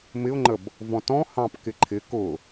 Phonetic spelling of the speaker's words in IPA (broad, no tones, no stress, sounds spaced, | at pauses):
m ɪ ʊ̯ ŋ͡ǃ ə b | v ɔ̃ t ɔ̃ h ɑ̃ p k ɪ ǃʰ ɪ k ʊ